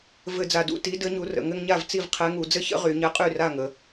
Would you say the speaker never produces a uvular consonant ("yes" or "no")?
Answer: no